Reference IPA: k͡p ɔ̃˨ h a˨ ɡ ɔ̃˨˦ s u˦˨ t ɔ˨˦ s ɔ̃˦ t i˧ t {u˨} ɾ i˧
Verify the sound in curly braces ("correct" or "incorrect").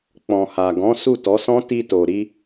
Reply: incorrect